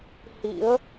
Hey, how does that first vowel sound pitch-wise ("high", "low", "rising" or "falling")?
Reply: rising